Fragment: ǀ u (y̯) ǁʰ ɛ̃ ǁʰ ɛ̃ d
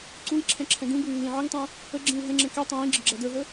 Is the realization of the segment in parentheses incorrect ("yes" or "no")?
yes